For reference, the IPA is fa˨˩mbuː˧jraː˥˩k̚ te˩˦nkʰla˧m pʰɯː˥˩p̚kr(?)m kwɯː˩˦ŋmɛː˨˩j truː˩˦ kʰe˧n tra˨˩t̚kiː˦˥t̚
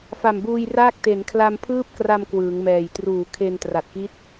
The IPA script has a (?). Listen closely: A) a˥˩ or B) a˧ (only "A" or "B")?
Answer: B